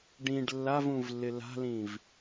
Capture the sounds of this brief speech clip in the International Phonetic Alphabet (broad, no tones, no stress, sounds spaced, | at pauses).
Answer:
ɖ ĩ ɖ lː a v ũ v lː ɪ l a̤ l ĩ v